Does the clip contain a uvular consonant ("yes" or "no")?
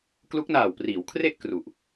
no